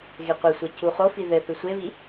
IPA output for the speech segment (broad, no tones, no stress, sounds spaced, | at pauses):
ɣ e qʷ e sʷ e c u χ o f i ð ɘ θ ɨ sʷ e β i